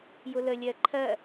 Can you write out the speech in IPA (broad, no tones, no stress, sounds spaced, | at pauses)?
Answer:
j ʊ l ə lʲ ɜ ǃʰ ɜ